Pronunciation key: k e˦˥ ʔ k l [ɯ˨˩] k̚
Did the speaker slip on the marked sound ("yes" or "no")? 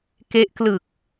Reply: no